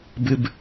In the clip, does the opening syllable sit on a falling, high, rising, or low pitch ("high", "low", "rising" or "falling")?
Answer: low